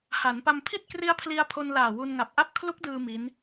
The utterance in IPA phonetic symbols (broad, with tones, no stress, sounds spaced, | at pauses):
h a˩˦ n p a˧ m pʰ i˥˩ t̚ k r i˦˥ a̯ pʰ l i˧ a̯ pʰ o˧ n l aː˨˩ w u˧ n ŋ a˨˩ p̚ ʔ a˥˩ p̚ kʰ l u˦˥ k̚ d ɯː˧ m i˦˥ n